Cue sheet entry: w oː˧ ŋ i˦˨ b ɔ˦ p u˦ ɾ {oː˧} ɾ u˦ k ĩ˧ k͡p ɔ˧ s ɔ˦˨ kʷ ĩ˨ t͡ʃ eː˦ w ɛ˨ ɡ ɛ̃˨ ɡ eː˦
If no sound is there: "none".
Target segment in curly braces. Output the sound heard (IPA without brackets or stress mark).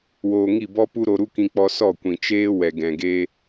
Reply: o˧